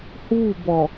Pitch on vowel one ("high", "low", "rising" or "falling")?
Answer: falling